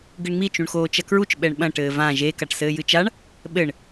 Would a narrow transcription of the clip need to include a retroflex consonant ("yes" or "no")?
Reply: yes